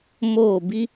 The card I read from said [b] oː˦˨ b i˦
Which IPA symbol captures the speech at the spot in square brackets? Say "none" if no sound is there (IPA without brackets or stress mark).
m